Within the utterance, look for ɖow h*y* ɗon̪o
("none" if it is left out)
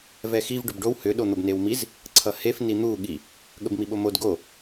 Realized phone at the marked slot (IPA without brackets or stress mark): ʏ